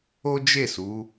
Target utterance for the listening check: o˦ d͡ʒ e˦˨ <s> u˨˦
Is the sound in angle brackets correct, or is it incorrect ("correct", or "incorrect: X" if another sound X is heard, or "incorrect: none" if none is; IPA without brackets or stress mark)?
correct